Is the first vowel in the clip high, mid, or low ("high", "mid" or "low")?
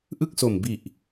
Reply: high